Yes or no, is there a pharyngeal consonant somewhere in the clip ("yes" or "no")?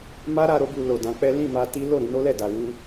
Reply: no